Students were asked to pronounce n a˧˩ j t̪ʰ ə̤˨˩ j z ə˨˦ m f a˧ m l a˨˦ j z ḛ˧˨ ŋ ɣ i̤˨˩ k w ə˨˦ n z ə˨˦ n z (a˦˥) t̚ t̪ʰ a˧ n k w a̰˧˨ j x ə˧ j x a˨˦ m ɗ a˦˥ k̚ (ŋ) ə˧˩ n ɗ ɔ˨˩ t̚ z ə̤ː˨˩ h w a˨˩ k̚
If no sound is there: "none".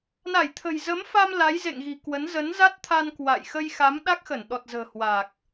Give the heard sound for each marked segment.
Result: a˦˥, x

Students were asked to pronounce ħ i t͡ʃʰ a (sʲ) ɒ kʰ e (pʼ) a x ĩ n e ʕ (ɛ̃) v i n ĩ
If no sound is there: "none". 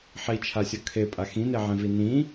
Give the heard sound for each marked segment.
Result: sʲ, pʼ, ẽ

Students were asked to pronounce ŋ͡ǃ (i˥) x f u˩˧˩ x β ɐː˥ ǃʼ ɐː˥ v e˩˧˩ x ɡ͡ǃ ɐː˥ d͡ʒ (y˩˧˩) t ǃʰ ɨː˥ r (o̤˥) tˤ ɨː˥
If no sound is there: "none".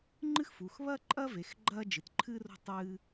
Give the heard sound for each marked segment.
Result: ɨ˥, ɨ˩˧˩, o̤˥

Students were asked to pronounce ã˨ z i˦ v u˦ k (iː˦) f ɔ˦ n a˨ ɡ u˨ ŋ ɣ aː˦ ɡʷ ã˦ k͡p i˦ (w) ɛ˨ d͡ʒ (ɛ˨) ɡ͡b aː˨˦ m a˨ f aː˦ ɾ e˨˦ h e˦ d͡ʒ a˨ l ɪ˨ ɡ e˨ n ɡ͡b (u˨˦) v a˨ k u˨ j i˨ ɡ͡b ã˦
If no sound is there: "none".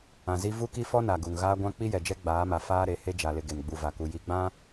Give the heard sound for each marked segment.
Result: i˦, j, ɛ˦, u˨

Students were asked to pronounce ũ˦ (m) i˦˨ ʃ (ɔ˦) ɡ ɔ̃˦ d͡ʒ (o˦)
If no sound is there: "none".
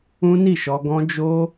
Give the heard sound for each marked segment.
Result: n, ɔ˧, o˦

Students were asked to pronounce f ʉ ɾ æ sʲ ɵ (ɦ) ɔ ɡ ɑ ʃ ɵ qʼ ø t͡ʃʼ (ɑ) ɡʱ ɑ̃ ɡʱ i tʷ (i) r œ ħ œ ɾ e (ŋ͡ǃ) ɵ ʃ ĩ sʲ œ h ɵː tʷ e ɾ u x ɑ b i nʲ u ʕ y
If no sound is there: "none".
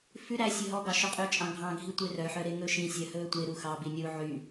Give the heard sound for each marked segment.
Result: ɦ, ɑ̃, e, ŋ

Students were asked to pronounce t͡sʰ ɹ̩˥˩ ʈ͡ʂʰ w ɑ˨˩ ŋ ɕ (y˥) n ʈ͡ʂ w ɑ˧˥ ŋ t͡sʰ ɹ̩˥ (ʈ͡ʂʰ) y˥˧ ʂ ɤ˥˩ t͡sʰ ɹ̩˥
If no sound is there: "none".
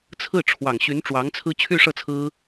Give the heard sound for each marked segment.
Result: y˧˥, t͡ɕʰ

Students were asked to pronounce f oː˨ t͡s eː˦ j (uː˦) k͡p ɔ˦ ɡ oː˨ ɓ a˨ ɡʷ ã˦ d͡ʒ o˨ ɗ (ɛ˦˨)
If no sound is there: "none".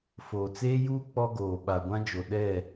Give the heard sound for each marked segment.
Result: uː˦, ɛ˦˨

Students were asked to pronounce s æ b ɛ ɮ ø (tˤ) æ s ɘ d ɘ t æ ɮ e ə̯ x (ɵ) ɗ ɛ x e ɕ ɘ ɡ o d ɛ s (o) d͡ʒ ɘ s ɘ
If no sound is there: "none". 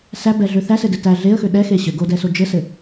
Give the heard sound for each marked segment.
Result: θ, ø, o

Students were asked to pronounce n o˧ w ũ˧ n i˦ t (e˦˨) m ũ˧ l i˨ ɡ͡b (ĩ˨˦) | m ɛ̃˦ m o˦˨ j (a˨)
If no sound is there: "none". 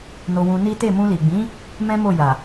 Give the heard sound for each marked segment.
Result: e˦˨, ĩ˨˦, a˨

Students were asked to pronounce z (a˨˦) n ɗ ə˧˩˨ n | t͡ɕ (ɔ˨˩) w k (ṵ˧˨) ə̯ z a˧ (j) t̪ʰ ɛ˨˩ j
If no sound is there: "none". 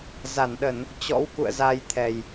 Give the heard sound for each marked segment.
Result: a˧˩, ɔ̰˧˥, ṵ˧˨, j

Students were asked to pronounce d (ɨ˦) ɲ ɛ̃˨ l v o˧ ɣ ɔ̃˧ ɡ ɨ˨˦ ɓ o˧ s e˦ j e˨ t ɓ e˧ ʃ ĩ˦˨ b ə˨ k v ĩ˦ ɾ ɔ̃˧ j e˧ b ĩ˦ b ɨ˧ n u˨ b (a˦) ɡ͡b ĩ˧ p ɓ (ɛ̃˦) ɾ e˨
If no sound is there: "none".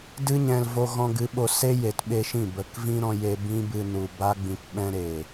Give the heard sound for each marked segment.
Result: ɨ˧, a˦, ɛ̃˦

